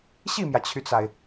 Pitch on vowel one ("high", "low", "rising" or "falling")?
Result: falling